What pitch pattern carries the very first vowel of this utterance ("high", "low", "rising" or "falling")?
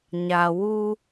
low